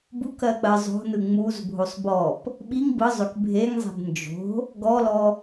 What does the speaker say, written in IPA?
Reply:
b u k ɜ k͡p ɜ zˤ o̤ n ɯ ŋ͡m u z bʱ o sˤ b ɔ p | ɓ i ŋ b ɯ zˤ ø k bʱ e ŋ zˤ e̤ b n d͡ʒ o̤ | ɡ ɔ l ɔ

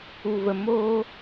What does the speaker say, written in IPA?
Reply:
u˨ v ə˨ m oː˧

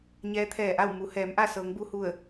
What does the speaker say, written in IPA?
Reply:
ɲ ɛː˧˥ t̪ʰ ɛː˧˩ ʔ a˥˨ w m u˩˧ h ɛː˩˧ m ʔ a˥˨ s ɤː˩˧ ŋ b u˧ h u˧˩ ə̯

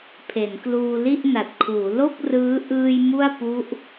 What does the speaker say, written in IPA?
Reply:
pʰ e˩˦ n k l uː˧ l i˥˩ ʔ n a˨˩ t̚ kʰ uː˩˦ l o˥˩ k̚ r ɯː˦˥ ʔ ɯː˧ j m u˥˩ a̯ p u˦˥ ʔ

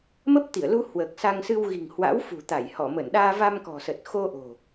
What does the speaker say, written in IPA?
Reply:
m ə˦˥ p̚ t̪ i˧˩ ə̯ l u˧ h w əː˨˩ k̚ s a˧ ŋ s ɨ˧ w ɣ i̤˨˩ ŋ h w a̰˧˥ w f ṳ˨˩ t̪ a˧˩ j h ɔ˧˩ m ə˧˩ n ɗ aː˧ v a˧ m k ɔ̤˨˩ s ə˨˩ t̚ x o˧ ʔ o̤˨˩

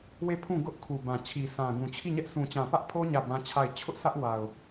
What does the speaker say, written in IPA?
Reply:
w e˦˨ pʰ ũ˦˨ ɡ ʊ˦ ʔ kʰ u˨ b ã˨ t͡ɕʰ i˨ sʰ ã˨ ɡ ũ˨ t͡ɕʰ i˦˨ ɲ ɛ˦ ʔ s ũ˨ t͡ɕ ã˨ p ä˦ ʔ pʰ o˦ ɲ ä˦˨ b ã˦ t͡ɕʰ a˦˨ ɪ̯ t͡ɕʰ ʊ˦ ʔ s ä˦ ʔ w a˨ ʊ̯

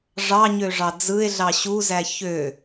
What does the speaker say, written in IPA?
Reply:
ʐ ɑ ɲ ø ʐ ɑ d͡z ɯ e̯ ɮ ɑ ɕ u z æ ç ø

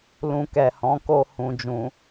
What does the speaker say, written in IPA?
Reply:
l ũ˨ k ɛ˨ h ɔ̃˨˦ k o˧ h ũ˨ d͡ʒ ũ˨

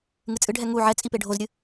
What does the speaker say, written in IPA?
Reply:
ŋ ɨ t͡sʼ ɨ ɖʱ ɛ ŋ u ʕ ɛ t͡sʼ i p e ɖʱ o z ɾʲ ɨ

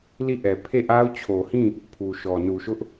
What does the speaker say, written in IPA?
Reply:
l i˦˨ ʔ ɛ˨ pʰ e˦˨ ʔ a˦ ʊ̯ t͡ɕʰ o˨ h ĩ˦˨ | pʰ u˨ ʃ ɔ˨ n u˨ ʃ ʊ˦ ʔ

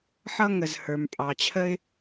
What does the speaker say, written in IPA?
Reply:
ħ ʌ˥ ŋ ə˩ z h ə˞˩ m pʼ ɑ˩ t͡ɕʰ ə˥ ɪ̯

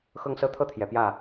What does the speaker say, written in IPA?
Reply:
x ɤ˦ ŋ s ɤ˦ t̪ʰ ɤ˥˨ t̪ʰ j ɛ˨˩ p j ä˥˨

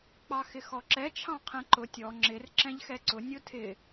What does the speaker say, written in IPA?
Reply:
k͡p ɑ x ɪ x ɔ ǁ ɛ t͡ʃʰ ɑ̃ qʰ ɛ̃ ǃ ʊ tʲ ɔ ŋ͡ǁ ɪ r ǁ ɛ̃ ʎ x ɛ ǀ ʊ nʲ ʊ tʰ ɪ

